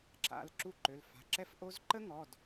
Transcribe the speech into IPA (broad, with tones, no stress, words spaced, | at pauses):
ǁa̰˩˧˩l ǁu˦˨ǃø˩˧˩lfa̤˩˧˩ ǁɛ˦˥fʔo˦˥z ǃə˦˥ŋɔ˩˧˩d